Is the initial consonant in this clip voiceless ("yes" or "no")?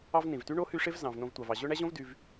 no